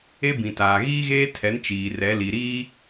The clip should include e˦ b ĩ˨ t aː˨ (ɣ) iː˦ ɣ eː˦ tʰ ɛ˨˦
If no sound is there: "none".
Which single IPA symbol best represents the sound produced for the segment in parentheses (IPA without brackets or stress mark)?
ɣ